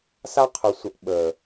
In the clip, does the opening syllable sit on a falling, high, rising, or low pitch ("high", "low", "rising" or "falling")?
high